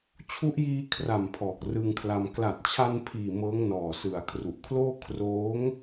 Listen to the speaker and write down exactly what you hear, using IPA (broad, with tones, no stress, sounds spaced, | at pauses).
t͡ɕʰ u˦˥ ʔ j iː˧ kʰ r a˨˩ m pʰ ɔː˨˩ k̚ r ɯ˧ ŋ kʰ l a˧ m k l a˨˩ t̚ t͡ɕʰ a˧ n pʰ iː˨˩ m ɤː˦˥ ŋ n ɔː˨˩ s ɯ˩˦ a̯ kʰ r u˨˩ ʔ kʰ l oː˥˩ kʰ r oː˦˥ ŋ